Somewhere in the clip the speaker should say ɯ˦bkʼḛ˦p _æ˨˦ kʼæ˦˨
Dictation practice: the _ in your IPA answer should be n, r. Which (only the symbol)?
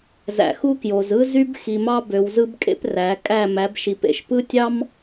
r